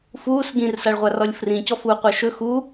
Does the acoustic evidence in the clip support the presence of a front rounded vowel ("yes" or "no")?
yes